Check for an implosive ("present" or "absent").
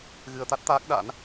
present